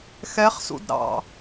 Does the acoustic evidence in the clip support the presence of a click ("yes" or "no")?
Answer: no